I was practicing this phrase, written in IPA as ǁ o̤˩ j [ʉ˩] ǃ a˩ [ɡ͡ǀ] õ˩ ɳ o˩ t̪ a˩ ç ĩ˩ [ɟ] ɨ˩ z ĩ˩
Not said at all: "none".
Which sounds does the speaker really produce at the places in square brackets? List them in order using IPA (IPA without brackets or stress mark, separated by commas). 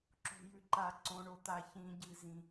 ʉ˩, ǀ, ɟ